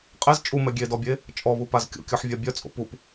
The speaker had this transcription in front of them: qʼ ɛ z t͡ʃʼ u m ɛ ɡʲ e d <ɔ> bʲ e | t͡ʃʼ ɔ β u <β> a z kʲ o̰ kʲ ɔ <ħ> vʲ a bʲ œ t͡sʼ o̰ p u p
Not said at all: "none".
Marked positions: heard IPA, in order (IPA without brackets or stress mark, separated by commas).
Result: ɔ, p, ħ